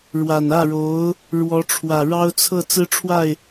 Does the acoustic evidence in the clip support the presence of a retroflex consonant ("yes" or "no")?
yes